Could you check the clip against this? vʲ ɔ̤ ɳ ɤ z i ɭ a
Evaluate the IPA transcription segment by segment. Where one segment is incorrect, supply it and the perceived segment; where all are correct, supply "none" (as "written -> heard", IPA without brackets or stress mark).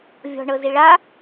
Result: none